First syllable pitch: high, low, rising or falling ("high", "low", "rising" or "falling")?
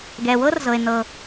low